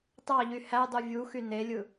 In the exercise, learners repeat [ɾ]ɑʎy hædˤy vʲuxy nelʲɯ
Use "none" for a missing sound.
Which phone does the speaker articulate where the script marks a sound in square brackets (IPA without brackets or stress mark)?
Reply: tˤ